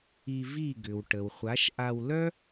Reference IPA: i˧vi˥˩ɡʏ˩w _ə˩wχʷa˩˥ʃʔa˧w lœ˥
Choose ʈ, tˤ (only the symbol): ʈ